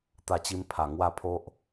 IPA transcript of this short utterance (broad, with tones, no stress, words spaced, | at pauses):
t̪a˥˧t͡ɕi˦mpʰa˨˩ ŋwa˥˧pʰo˦ʔ